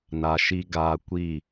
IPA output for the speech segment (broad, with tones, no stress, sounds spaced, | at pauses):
n a˧ ʃ i˦ ɡ aː˧ kʷ i˦˨